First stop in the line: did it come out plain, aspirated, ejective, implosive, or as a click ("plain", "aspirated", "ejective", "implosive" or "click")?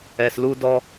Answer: plain